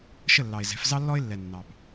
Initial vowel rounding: unrounded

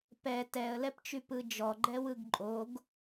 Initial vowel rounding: unrounded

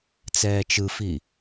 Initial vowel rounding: unrounded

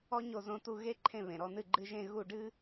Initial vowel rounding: rounded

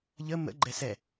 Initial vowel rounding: unrounded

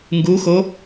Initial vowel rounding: rounded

